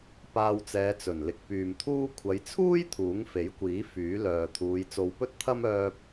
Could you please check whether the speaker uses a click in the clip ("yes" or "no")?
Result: no